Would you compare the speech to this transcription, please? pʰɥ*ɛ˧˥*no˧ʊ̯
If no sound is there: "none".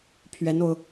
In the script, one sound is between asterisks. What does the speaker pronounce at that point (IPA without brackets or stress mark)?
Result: ɛ˧˥